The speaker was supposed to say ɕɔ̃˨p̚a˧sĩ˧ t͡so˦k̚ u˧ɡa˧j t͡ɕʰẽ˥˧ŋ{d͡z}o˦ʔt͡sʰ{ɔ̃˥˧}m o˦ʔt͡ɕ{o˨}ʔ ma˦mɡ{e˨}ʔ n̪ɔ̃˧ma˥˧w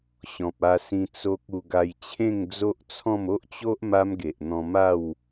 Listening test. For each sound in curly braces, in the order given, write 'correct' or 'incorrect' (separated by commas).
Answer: correct, correct, incorrect, correct